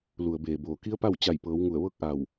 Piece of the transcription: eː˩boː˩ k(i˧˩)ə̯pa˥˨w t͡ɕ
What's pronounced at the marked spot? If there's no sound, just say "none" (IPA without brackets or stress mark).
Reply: i˧˥